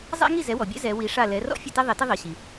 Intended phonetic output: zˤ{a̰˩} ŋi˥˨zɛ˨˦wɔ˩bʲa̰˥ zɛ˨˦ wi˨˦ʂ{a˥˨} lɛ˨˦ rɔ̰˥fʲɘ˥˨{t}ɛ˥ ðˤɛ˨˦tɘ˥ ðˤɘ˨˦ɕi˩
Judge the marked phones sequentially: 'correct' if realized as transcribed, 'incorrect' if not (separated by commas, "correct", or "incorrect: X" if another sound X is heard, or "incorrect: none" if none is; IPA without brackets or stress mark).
incorrect: a̰˥, correct, correct